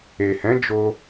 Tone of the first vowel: low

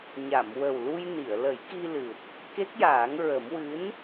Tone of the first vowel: low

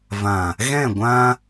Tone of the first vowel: low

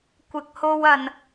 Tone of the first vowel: low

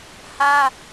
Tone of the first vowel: high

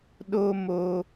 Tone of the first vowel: high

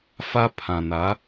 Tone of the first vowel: high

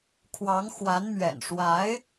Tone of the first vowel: rising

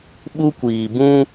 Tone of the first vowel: high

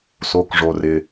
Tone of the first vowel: low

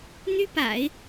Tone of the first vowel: high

